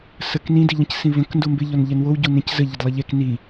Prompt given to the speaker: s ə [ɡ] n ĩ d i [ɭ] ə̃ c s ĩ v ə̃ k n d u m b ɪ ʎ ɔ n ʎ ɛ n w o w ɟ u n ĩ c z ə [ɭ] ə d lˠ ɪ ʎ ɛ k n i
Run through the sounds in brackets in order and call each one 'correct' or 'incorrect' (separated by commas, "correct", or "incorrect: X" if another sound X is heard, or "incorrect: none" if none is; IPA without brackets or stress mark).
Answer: incorrect: k, incorrect: ʎ, incorrect: ʎ